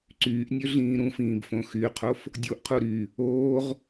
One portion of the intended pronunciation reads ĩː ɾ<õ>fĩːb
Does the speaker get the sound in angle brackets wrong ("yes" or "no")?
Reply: yes